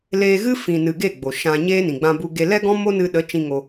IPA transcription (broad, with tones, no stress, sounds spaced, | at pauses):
l eː˧ ɣ ɨ˦ f ĩ˨ n ɨ˨ ɡ e˦˨ ɡ͡b o˨ ʃ ã˧ ɲ eː˦ n ĩ˨ ɡ͡b ã˧ b u˧ ɡ e˧ l ɛ˦ ɡ ɔ̃˦ m o˦ n ɨ˧ ɗ ə˨˦ t͡ʃ ĩ˧ ŋ o˧